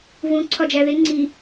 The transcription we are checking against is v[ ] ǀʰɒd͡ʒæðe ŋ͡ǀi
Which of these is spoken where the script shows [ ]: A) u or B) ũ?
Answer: B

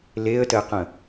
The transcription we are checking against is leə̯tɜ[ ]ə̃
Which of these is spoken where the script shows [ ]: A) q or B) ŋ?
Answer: A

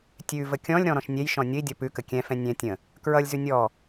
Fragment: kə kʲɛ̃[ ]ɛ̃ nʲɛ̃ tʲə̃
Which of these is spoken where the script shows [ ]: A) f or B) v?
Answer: A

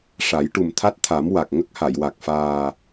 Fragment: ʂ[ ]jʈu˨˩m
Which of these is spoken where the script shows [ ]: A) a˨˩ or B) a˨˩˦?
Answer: B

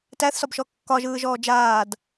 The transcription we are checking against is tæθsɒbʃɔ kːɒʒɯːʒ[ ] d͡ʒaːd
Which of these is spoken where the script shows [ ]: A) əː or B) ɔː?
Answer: B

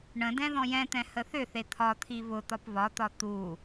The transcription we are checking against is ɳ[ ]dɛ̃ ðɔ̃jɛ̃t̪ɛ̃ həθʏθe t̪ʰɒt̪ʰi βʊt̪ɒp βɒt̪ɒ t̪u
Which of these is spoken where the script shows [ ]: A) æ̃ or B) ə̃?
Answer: B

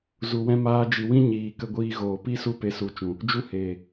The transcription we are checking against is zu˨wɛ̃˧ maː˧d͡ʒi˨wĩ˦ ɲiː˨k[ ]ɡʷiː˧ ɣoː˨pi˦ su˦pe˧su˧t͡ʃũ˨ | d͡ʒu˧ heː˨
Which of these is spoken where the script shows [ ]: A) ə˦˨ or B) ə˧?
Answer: B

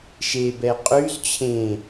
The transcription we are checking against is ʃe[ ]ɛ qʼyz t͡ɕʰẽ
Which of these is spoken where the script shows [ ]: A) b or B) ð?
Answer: A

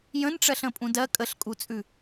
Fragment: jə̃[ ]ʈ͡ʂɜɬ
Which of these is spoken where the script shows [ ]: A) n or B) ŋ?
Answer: A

